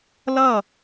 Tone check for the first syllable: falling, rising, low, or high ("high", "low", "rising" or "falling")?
falling